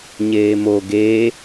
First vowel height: mid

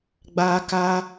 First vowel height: low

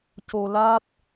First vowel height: mid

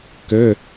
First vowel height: mid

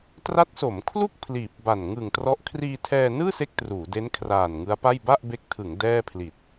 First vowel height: low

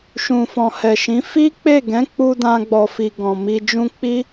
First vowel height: high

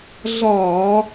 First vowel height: low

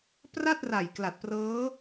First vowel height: low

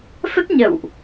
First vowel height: mid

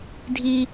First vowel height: high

